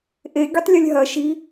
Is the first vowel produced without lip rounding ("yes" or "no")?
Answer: yes